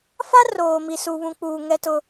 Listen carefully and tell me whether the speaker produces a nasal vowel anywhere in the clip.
yes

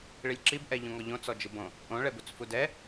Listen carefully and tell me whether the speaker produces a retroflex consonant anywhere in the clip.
yes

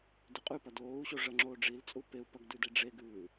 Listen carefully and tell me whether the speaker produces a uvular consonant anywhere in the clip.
yes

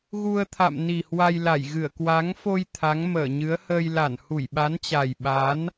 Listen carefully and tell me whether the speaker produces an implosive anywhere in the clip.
yes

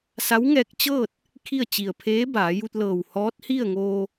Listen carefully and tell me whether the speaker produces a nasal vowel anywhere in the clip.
no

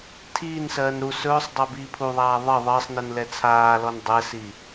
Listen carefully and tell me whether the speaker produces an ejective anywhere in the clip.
no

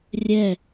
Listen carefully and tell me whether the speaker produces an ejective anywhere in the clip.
no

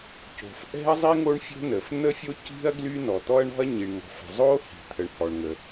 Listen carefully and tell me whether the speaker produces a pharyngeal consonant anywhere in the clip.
no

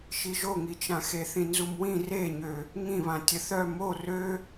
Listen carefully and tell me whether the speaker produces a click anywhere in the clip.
no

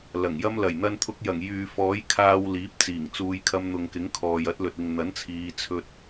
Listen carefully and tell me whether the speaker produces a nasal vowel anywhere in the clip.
no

